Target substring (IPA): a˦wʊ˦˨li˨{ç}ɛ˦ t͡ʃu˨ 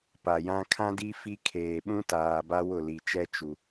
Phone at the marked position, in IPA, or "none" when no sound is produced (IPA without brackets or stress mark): t͡ʃ